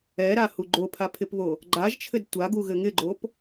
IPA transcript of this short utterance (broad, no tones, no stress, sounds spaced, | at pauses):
ɛ ɾ a h u ɡ͡ǃ o pʰ a pʰ ɪ p β o | ɡ͡ǃ a ʒ t͡ʃʰ ɘ d tʷ a ɡ u ɣ ɘ ŋ ɪ ɡ͡ǃ o p